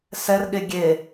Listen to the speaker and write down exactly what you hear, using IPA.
s ɛ r ɠ e ɡʲ e

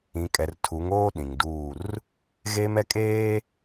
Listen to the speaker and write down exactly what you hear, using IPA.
ĩ˨ kʼ ɛ˨ r tʰ u˨˦ ŋ oː˦ ɗ ĩ˨ ŋ d uː˦˨ r | ɣ eː˦ m ɛ˦ kʼ eː˦

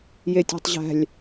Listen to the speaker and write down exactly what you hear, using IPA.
j e tʲ e̤ tˤ ʑ æ̤ lʲ

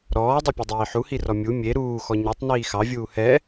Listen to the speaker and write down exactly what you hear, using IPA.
ɾ ɔː dˤ e pʲ e dˤ iː ħ u h i r ɔ mʲ u mʲ e ɾ uː x ɔ ɲ ɛ tˤ n iː x ɑ vʲ uː h ɛ

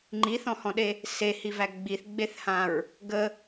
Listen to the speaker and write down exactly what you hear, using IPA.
ŋ͡ǃ i θ ɔ̃ h ɔ̃ ɗ e | s e h i v æ ɡ͡b i θ ɡ͡b e θ h ã ɹ | ɡ ə

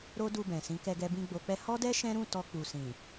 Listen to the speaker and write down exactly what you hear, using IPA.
ɾ o˦ d u˧ b ɛ̃˨ s ĩ˨˦ k ɛ˧ ɡ ɛ˧ b ĩ˧ ɡ͡b o˧ k͡p ɛ˦ h ɔ˦ d ɛ˦ ʃ ɛ̃˦ ɾ ũ˦˨ t ɔ˧ k͡p u˨ s ĩ˨

